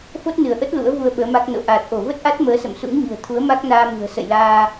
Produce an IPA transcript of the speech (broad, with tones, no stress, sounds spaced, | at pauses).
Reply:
f o˦˥ t̚ n ɨ˧˩ ə̯ ʔ ə˦˥ t̚ l ṵ˧˥ ə̯ v u˧ ə̯ ɓ əː˨˦ m a˦˥ k̚ n o̰˧˨ ʔ aː˨˩ t̚ ʔ o˧˩ v ə˦˥ t̚ ʔ a˦˥ t̚ m əː˨˦ s ə̰˧˨ m s ṵ˧˥ ŋ ɲ ɨ̤˨˩ ə̯ t̪ʰ u˨˦ ə̯ m a˦˥ k̚ n aː˧ m ɨ̤˨˩ ə̯ s ə̰˧˨ j l aː˧